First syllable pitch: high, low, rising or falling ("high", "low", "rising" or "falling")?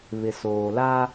low